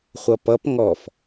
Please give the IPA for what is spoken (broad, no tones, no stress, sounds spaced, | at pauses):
χʷ ʌ p ʌ p ŋ ɔ f